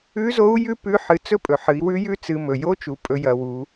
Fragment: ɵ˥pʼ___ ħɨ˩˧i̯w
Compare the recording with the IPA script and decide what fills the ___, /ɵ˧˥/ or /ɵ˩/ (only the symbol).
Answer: ɵ˩